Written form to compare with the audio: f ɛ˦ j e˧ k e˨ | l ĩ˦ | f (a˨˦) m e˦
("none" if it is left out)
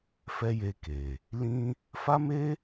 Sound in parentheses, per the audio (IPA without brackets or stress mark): a˦